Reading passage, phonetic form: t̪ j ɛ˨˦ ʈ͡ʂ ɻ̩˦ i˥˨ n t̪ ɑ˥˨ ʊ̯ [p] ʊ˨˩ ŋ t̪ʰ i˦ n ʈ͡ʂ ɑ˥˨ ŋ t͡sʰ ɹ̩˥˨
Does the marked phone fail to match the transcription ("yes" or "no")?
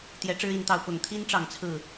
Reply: no